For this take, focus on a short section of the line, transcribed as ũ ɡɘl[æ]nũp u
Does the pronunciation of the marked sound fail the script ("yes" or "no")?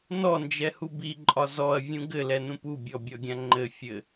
yes